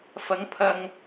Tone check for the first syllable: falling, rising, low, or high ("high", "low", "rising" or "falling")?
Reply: rising